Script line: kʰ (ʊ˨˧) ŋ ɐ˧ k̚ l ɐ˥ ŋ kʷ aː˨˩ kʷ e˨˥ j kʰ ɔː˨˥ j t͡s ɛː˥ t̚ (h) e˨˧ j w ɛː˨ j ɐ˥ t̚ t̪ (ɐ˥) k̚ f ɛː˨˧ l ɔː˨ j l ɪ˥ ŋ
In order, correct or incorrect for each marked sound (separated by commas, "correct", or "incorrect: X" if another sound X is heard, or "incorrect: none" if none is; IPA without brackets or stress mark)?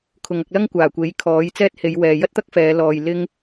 correct, correct, correct